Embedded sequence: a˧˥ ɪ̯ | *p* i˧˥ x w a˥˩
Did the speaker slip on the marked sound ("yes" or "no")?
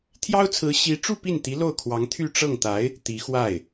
yes